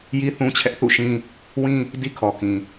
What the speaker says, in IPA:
ji˦ θũ˦t͡ɕʰɛ˦ʔθṵ˦˨ʃĩ˦ | wĩ˦ | di˦kʰɔ˨kĩ˨

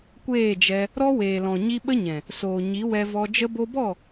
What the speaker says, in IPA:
kʷeː˦˨d͡ʒɛ˧ | ɾɔ˦weː˨lɔ̃˨ ɲi˧ ɓə˦ɲɛ̃˨ | soː˨ɲi˨˦ wɛ˧vɔ˧ d͡ʒə˧bo˧bɔ˦˨

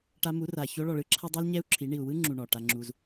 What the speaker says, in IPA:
ʈa˧mu˨˦ra˨ ço˧ɭɔ˨ɭɯ˧ ǁʰa˦dˤu˦l ɲɛ˦u̯ǁʰi˨˦ ɳi˨u̯wɯ˦ŋ͡ǁu˨ ɳɔ˨ʈa˦ŋ͡ǁu˦z

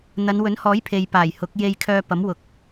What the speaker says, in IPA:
n̪ɐ˨˧nwɵ˨˥nhɔː˨˥jpʰe˨j paː˨˩jhʊ˨˥k̚ je˧jkʰœː˧pɐ˨˥m wʊ˨k̚

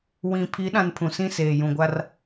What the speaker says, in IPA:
wĩ˨ pʰi˨˦ɗã˨n pʰũ˨sĩ˦seː˨ jũ˨ɡʷa˦r

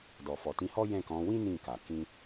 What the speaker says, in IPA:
dɔ˨fɔ˨tĩ˧hɔ˦ jɛ̃˦˨kɔ̃˨˦ wĩ˦ nĩ˦˨ka˨ kĩ˧

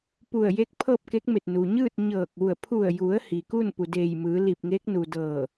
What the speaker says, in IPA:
pu˧˩ə̯je˧˥k̚ pʰɤː˥˨p̚ke˧˥k̚me˧˩t̚ nu˩ɲɯː˥˨t̚ ɲɤː˧˩k̚ʋu˧˩ə̯ pʰu˧˩ə̯ju˩˧ə̯ hi˩ku˥˨n pu˩deː˧˩jmɯː˩˧ li˧˩p̚ŋeː˧˥k̚nu˩dɤː˧˩

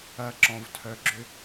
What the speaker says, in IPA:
ɐǁɔ̃vtʰœɡ͡ǁʏ

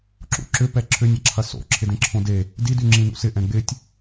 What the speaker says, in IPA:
ǁṵǁʏ pɛǁʰʏnʲɐǁʰɐ so̰ǁʰɪ dẽǁʰõde | didy ŋ͡ǁĩnṵsɪ ʔɛ̃ɡ͡bɪtʲ

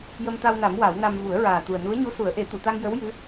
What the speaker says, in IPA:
jə˧mt̪a˧wna˨˩˦m wa˨˩˦wna˧m vu˨˩˦ə̯ɹaː˨˩ t̪u˨˩ə̯nu˧˥ə̯ɲu˧˥su˨˩˦ə̯ ʔe˨˩˦t̪u˨˩˨t̪a˧ŋ jə˧˥w jɨ˧˥

